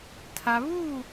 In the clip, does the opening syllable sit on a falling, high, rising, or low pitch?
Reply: low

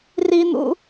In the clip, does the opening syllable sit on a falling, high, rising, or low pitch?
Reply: high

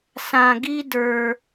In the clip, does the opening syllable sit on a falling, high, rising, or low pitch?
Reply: high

